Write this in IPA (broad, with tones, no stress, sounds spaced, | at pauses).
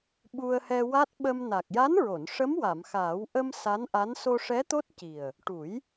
ɓ u˧ ə̯ h ɛ˧ w a˦˥ t̚ ɓ ə˧ m n a˨˩ k̚ j a˧˥ n ɹ o˨˩˨ n ʂ ə˧˥ m w a˨˩˨ m x aː˨˩˦ w ʔ ə˧ m s a˧˥ n ʔ a˧˥ n s o˧ ʂ ɛ˧˥ t̪ o˦˥ t̚ c i˨˩ ə̯ | ʈ u˨˩˦ j